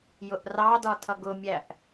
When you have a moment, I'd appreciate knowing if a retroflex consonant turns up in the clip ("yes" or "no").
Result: no